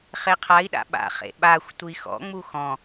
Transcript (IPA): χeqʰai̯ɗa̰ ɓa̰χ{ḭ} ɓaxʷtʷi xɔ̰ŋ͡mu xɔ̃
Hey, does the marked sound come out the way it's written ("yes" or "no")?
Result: no